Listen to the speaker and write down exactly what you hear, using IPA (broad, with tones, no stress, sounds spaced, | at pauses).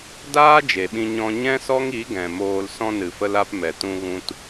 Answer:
d aː˦ d͡ʒ e˨ ɓ ĩ˧ ɲ ɔ̃˧ ɲ ɛ̃˦ s ɔ˦ ŋ i˨˦ ɡ ɛ̃˨ m oː˧ l s ɔ̃˧ n ɨ˨ f ə˧ l a˧ p m ɛ˨ t ũ˧ ɣ ũ˧ t